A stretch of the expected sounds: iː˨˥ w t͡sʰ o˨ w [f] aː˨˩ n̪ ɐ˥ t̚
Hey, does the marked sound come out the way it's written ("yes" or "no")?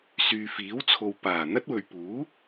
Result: no